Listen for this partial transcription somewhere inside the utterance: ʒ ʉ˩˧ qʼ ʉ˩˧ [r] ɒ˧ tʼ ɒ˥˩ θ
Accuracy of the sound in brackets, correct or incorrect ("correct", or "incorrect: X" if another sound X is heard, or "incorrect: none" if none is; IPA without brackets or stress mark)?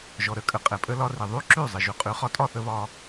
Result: incorrect: χ